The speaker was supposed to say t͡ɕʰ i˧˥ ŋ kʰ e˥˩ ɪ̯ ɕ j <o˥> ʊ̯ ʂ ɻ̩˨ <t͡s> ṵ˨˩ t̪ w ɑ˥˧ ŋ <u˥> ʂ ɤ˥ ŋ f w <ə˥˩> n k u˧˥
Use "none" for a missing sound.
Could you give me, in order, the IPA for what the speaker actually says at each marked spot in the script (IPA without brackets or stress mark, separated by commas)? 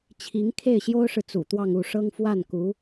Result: o˥, t͡s, u˥˩, a˥˩